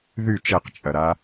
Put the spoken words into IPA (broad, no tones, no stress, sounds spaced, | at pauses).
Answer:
ð y t͡ʃ ɛ q t͡ʃʼ ɐ ɾ a